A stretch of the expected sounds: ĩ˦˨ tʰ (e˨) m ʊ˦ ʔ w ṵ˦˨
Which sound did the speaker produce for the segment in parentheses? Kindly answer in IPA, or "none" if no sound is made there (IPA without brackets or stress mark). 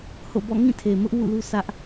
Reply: e˨